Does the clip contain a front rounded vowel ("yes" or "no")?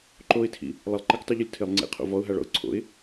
no